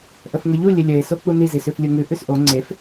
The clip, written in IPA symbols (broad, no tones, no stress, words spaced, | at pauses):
ʔəfŋəʎu lʲəlʲəe̯ sok͡puni zisʉflʲuŋʉ ʔʉsʔo ŋ͡ǀef